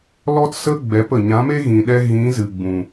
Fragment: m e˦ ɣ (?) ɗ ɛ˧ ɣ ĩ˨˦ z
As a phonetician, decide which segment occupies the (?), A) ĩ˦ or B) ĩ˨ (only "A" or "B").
B